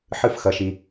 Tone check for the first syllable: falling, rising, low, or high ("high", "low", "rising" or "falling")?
falling